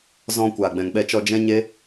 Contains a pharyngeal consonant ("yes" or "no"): no